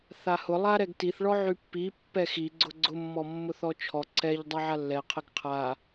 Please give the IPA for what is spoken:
θ a h ʊ lˠ a ɾ ɛ ɡ t i θ ɭ ɔ ʕ y pː i pː ɛ x i ɡ͡ǀ ʊ ɡ͡ǀ ʊ mː ɔ mː ʊ θ ɔ t͡ʃʰ ɔ ǀ ɛ ʎ dˤ a ʕ a lː ɛ qʰ ɛ ɡ qʰ a

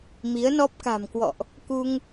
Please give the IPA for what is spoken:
m i˨˦ ə̯ n ɔ˦˥ p̚ k a̤˨˩ m k w ɔ̰˧˨ ʔ | k u˧ ŋ

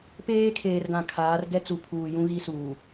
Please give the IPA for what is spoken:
p eː˦ kʰ eː˨ r ɡ ã˨ kʰ aː˨˦ r ɡ ɛ˦ t͡s u˨ pʰ uː˨ j ũ˦ ɣ i˦ s uː˨

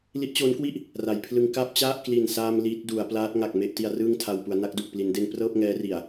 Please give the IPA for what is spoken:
l i˦˥ ʔ t͡ɕ oː˦˥ n k w i˥˩ ʔ | r a˩˦ j pʰ l ɯ˧ ŋ k a˥˩ p̚ t͡ɕ a˥˩ ʔ k l i˨˩ n s aː˧ m l i˦˥ t̚ d u˩˦ a̯ p l aː˦˥ t̚ ŋ a˨˩ k̚ m e˥˩ ʔ t i˧ a̯ r ɯː˥˩ ŋ tʰ a˧ w p u˩˦ a̯ n a˦˥ k̚ d u˨˩ k̚ p l i˩˦ n d e˧ n p r ɤː˥˩ p̚ ŋ ɛː˦˥ r i˨˩ a̯

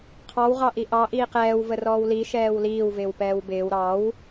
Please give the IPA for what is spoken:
qʰ ɑ w ʁ ɑ ʔ i ʔ ɑ ʔ iː q ɛː w v ə r ɔː w l i ʃ ɛː w l iː w v ɪː w p ɛː w b ɪː w ɾ ɑ w

